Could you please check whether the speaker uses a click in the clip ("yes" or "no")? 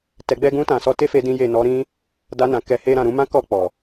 no